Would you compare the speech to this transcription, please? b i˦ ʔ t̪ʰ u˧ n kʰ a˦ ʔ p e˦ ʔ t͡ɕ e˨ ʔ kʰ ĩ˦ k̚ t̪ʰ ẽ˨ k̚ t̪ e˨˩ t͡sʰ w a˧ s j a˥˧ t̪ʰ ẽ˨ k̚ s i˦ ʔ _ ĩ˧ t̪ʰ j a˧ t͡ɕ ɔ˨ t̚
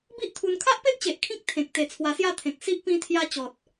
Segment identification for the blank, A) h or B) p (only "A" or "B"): B